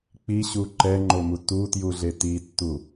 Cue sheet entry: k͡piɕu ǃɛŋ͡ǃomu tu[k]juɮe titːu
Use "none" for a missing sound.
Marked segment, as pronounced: t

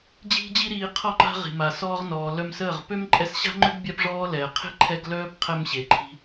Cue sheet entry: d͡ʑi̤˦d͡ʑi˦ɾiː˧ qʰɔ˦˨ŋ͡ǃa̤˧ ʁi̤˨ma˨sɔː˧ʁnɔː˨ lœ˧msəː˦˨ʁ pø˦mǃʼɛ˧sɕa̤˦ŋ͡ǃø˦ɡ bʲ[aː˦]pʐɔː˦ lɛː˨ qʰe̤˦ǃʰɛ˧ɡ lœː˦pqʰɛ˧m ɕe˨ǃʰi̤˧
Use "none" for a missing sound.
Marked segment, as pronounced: a˦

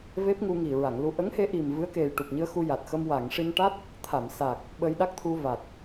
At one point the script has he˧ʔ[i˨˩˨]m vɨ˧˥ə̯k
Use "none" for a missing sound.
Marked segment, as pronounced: i˨˩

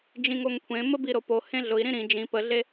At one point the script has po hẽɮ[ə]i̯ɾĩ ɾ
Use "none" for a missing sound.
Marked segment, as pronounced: ʊ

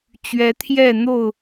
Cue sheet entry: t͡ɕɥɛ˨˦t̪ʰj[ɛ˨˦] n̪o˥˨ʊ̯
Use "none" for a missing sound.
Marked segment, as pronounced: ɛ˥˨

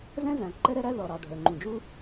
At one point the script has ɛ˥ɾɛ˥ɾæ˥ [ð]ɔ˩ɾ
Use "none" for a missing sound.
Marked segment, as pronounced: ð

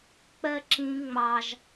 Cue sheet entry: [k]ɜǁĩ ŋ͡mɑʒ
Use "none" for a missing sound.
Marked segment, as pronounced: k͡p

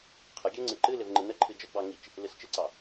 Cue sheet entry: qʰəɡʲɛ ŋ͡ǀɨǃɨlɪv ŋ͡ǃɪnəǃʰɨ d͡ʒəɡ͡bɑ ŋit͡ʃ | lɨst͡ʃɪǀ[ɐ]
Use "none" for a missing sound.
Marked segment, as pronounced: ɑ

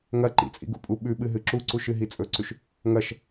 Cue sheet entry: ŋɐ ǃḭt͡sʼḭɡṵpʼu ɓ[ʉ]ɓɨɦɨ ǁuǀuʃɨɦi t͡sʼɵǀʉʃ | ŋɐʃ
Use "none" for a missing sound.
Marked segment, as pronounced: ʉ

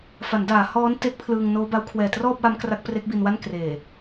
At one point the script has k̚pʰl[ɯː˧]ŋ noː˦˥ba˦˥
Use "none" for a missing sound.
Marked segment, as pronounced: ɯː˧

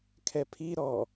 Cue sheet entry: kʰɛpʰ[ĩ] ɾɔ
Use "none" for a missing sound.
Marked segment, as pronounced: i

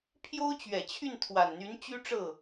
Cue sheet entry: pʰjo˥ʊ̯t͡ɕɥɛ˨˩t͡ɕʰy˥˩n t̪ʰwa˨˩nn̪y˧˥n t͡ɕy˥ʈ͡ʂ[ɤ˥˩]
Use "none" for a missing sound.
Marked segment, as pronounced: ɤ˥˩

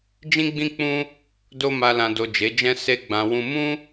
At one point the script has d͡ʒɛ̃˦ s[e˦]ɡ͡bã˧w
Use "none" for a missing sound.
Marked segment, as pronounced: e˦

